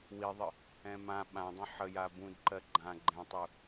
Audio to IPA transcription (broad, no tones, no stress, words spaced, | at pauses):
wiðˤə | ɛ̃mã ɓãdˤə̃ ħəja bũdǃɜ ɡ͡ǃã ɡ͡ǃɛ̃tˤu